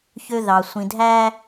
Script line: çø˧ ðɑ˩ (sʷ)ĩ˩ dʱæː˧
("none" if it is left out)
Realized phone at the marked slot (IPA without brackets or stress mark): sʷ